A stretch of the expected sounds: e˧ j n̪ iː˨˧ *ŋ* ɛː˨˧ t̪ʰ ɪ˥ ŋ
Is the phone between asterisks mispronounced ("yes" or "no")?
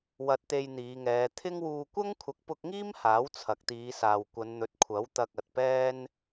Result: no